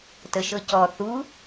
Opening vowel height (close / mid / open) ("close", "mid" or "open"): mid